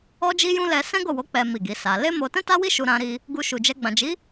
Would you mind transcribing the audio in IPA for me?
ɔ˧ d͡ʒ i˧ j ũ˧ l ɛ˧ s ɛ̃˦ ɡ o˦˨ w o˨˦ k͡p ɛ˦ m i˦˨ ɡ i˨˦ s a˧ l e˦ m o˧ t ɛ̃˦ t a˦ w i˦ ʃ u˧ ɾ ã˧ ɾ i˧ | ɡ u˧ ʃ u˨ d͡ʒ ɛ˧ ɡ͡b ã˨ d͡ʒ i˨˦

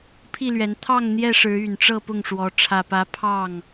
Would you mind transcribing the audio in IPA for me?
pʰ i˥˨ l ɥ ɛ˨˦ n t̪ʰ ɑ˥˨ ŋ n̪ j ɛ˥˨ ʂ ɻ̩˨˦ y˨˩ n ʈ͡ʂ ɤ˥˨ p ʊ˥˨ ŋ ʂ w ɔ˨˦ ʈ͡ʂʰ ä˨˩ p ä˨˦ pʰ ɑ˥˨ ŋ

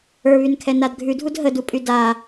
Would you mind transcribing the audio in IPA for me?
ə˞ β y n kʰ ɛ n a d ɡʱ ʉ dʱ u d ɦ ə d u pʼ y d a

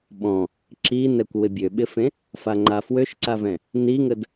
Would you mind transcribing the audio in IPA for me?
ɓ ɔ̃ | ǁ i n ɛ kʷ w ɪ bʲ ø ɓ ɪ f ẽ | f a ŋ͡ǃ a f w ø ʃ ǀ a v ɛ̃ | n i ŋ ə d

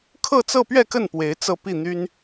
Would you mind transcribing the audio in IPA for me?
kʰ ɤ˥˧ t͡s ɤ˥˧ p ɥ ɛ˥˧ k ə˥˩ n p w e˧˥ ɪ̯ t͡s ɤ˥˧ p i˥˩ n̪ y˥ n

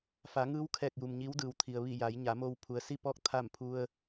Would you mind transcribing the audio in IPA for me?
f a˩˧ ŋ ɯː˧˥ w kʰ ɛː˧˩ k̚ j u˩ m ɲ i˧˥ w d ɯː˩ w t̪ʰ i˩ ə̯ ʋ i˧˩ j a˩˧ j ɲ a˩˧ m o˧ w pʰ u˩ ə̯ s i˥˨ p ɔː˥˨ k̚ t̪ʰ a˥˨ m pʰ u˧ ə̯

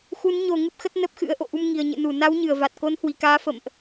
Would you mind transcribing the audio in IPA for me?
x u˨˦ n ɲ o˨˩ ŋ ɨ˦˥ p̚ x ə˦˥ t̚ n ə˦˥ p̚ x ɨ̰˧˥ ə̯ ʔ o̰˧˨ ʔ u˧ m ŋ i˨˩ ə̯ ɲ ɨ̰˧˨ n u˧˩ n a˨˦ w ɲ ɨ˧˩ ə̯ v a˨˩ t̚ k o˨˦ n h w i˨˩ k aː˨˦ f ə̰˧˨ m ʔ

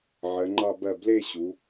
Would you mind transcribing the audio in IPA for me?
ʕ ɜ˩˧ ŋ͡ǃ ɑ˥˧ b ɜ˥˩ b l e˥˧ ɕ u˩˧

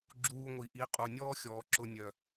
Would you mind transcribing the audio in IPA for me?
ɡ͡ǁ uː˧ ŋʷ i˨ ʔ i˨˦ qʼ u˨ nʲ ɔː˦ xʲ ɔː˨ ǁ ʊ˧ nʲ œ˨

